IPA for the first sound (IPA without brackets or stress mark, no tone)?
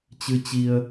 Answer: t͡ɕ